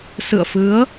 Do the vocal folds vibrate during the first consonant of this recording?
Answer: no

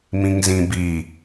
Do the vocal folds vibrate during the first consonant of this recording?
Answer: yes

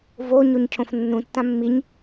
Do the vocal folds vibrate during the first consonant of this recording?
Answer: yes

